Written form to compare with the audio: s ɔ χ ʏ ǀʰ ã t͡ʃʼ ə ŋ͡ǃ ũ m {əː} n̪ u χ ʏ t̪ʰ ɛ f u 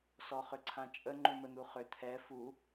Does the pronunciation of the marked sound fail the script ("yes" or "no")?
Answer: yes